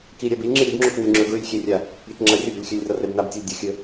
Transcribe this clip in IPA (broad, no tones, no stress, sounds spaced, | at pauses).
k i ɾʲ a b i lʲ ŋ͡ǁ e ɾʲ u b ŋ͡ǁ o k n ɨ lʲ ŋ͡ǁ ɵ ɡ ɹ ʉ lʲ xʲ e rʲ a | ɾʲ e k ŋ͡ǁ ɐ rʲ ɵ b ɵ lʲ xʲ ʉ lʲ r ɐ r e b n a b tʲ e lʲ dʲ ɵ xʲ ɵ